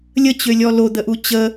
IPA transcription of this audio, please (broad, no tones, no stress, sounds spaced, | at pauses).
lʲ ə t͡ɕ ø lʲ ɔ l o d̪ ə ʔ u t͡ɕ ə